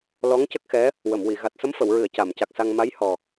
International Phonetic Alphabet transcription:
lɔ˧˥ŋ cə˦˥k̚xɛ˧˥ | wə˨˩˨mwi˨˩˨ ɣa˨˩t̚sə˧˥mfə˨˩˨wɹɨ˨˩˨ə̯ ca˨˩˨mca˨˩k̚sa˧ŋ ma˧˥jhɔ˨˩

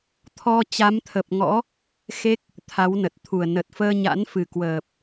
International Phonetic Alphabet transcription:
t̪ʰɔ˧t͡ɕa˨˦mt̪ʰə˨˩p̚ŋɔ̰˧˥ | xe˦˥k̚ | t̪ʰa˨˦wnə˨˩t̚t̪ʰu˨˩ə̯ nə˨˩t̚fəː˧ɲa̰˧˥n fɨ˨˩kwəː˨˩p̚

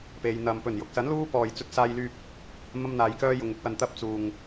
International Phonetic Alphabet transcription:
pe˨˧j n̪ɐ˨m pɵ˨˩njʊ˨k̚sɐ˨˥n luː˥pɔː˨j t͡sɵ˥t̚saː˥jlyː˥p̚ | mɐ˥mn̪aː˨˧jkœː˥ jʊ˨˧ŋɪ˥k̚wɐ˧nt̪ɐ˥p̚ t͡suː˨ŋ

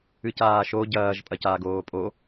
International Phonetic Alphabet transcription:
ɨcaːʃo ɟɐːʒ pʼɐcaːɡoːpʼo

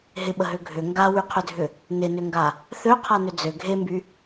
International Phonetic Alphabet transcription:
ɦɪɓəɦø ɡʱʏ ŋɡawyqʰʏdʱʏ | nɪnʏŋɡa | θøqʰanʏ d͡zø ɡʱemby

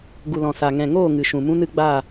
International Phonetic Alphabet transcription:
ɡu˨lɔ̃˨ sa˨ŋɛ̃˨ŋoː˦˨ ŋɨ˨ʃũ˨mũ˦nɨ˦ ɡ͡ba˦˨

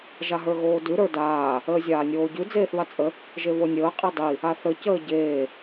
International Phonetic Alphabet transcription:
ʒaɦə˞ɣoːdʉ ɾə˞daː | əːzʲaːnʲoːɟʉ d͡zeːθβat͡sʼə | ʒeβonʲəː qʼidˤi | aθə cəːɟeː

